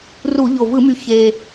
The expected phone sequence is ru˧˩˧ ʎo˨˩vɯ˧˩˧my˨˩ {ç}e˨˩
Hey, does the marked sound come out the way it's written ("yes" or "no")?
yes